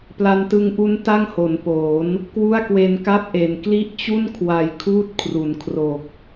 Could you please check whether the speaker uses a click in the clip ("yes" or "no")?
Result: no